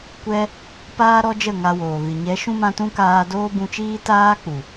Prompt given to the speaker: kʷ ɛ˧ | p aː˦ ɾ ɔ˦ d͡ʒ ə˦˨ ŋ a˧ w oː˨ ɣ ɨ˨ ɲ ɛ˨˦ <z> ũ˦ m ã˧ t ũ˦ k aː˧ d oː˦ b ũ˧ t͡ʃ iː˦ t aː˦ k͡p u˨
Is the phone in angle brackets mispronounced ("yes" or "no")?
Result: yes